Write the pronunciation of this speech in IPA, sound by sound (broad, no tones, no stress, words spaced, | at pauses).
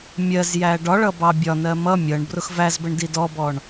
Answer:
mʲɜz jæɖɒɭʌ bɑbʲɒnɜ mʌ mʲʌɳ brʊxvæzbəɳ didɔbɔɳ